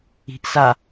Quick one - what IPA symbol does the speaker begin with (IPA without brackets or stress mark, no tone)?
i̤